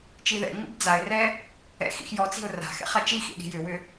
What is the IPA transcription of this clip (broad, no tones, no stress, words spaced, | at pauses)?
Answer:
t͡ʃiðɛ̰ŋ͡mḭb d͡zaɪ̯rɛ | ɛ̰xḭx jɔt͡si̤ʊ̯ ra̤xɛ̰χ at͡ʃixḭ ɗi̤jʏwʏ